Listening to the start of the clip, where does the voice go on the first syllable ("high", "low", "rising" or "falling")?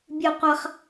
high